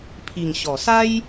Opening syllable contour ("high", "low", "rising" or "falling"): low